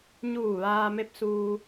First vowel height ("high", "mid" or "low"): high